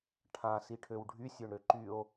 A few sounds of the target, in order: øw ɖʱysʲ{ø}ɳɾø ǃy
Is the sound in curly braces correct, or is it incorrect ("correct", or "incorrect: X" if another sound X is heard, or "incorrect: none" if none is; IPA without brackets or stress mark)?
correct